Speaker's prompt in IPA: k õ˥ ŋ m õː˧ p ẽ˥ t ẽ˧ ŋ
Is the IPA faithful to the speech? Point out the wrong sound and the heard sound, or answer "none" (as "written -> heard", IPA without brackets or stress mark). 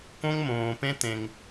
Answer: none